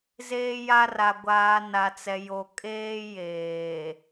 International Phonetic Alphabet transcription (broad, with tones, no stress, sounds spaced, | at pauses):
z eː˦ j a˦ r a˨ ɡʷ aː˨ n a˨ t͡s ɛ˨ j o˨ kʼ eː˦ j eː˨